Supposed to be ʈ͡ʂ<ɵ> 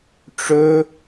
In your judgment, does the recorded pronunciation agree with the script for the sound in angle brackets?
yes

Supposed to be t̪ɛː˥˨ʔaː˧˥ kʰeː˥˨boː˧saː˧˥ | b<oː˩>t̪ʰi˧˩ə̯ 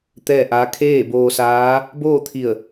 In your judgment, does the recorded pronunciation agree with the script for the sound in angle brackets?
no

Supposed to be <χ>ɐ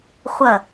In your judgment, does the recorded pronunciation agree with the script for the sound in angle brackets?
no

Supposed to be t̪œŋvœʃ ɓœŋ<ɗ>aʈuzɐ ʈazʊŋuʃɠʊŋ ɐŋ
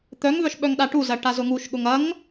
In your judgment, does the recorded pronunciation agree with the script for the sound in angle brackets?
yes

